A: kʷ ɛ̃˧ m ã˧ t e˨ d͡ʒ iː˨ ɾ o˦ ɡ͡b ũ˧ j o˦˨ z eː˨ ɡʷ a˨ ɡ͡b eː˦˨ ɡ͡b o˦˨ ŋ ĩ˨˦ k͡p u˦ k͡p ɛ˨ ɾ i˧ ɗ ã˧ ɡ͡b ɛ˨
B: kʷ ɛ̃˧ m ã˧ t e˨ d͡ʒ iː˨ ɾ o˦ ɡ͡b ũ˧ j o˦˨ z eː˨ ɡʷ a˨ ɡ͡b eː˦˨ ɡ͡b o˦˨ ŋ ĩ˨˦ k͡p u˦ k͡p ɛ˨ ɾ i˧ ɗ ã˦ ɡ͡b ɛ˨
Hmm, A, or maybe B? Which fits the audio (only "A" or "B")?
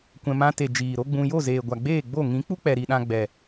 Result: A